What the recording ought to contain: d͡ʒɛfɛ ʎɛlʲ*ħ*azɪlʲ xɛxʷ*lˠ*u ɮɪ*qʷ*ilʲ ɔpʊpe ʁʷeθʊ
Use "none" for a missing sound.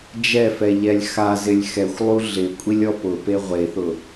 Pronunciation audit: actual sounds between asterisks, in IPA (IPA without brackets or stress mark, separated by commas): x, lˠ, kʷʼ